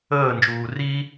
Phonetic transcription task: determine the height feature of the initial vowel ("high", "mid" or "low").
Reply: mid